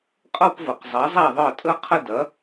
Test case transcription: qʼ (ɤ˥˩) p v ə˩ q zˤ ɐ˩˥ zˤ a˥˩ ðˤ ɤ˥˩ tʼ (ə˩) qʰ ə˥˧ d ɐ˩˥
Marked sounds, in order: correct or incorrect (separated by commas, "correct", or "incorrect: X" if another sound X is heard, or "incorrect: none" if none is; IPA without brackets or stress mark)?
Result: incorrect: ɤ˥˧, incorrect: ə˥